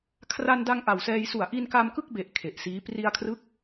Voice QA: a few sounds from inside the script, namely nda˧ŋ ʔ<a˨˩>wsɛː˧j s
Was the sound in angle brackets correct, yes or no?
yes